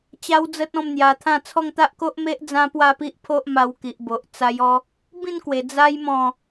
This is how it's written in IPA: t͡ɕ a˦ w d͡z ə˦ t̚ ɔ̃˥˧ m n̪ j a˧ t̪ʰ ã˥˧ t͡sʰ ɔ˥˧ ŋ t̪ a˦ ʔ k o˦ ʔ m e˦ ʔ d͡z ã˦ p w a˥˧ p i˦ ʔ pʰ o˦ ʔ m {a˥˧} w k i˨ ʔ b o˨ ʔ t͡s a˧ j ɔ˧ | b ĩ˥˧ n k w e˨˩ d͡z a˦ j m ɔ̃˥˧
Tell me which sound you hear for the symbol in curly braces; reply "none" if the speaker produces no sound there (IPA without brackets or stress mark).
a˧